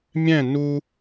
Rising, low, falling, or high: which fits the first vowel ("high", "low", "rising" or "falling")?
falling